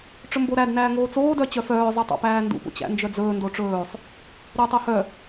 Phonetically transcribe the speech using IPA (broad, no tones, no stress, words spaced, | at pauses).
ʈ͡ʂɵmboɾæd næːŋoːt͡soː dœt͡ɕœfœː zˤœtˤo̰pæːndṵ pṵt͡ɕæ̰nd͡ʒœd͡zɵː ndoʈ͡ʂɵːsˤ | ɾɵːtˤohœ